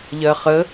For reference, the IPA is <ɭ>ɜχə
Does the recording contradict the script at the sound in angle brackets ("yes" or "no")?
yes